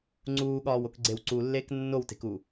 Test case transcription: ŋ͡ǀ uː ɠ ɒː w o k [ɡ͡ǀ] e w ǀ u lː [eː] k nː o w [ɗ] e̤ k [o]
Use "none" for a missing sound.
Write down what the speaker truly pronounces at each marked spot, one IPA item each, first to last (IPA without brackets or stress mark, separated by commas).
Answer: ɡ͡ǀ, eː, t, u